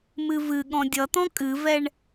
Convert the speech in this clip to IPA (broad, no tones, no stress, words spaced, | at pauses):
mɨvɨ ɠɔ̃dʲʌt̪ɔ̃ kʼɨvɛɳ